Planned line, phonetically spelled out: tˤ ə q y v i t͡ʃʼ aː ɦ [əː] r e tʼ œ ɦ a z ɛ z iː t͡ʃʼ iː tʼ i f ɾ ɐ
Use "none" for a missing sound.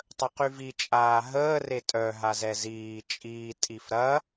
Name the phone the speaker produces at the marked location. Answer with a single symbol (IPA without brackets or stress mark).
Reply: əː